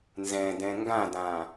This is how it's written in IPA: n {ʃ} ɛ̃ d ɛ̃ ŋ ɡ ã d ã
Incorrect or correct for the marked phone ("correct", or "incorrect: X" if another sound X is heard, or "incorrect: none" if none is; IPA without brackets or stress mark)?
incorrect: z